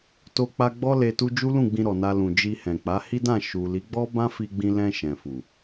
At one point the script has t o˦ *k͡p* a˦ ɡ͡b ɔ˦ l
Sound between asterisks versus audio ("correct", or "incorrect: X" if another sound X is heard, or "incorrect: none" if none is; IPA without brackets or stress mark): correct